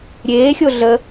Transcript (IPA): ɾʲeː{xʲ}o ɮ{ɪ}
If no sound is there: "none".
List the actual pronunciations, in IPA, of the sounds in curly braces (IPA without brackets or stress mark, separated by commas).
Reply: xʲ, ə